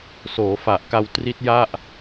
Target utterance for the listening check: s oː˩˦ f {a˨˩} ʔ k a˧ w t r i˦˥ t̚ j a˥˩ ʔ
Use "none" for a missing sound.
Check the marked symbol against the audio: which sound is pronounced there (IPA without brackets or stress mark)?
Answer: a˨˩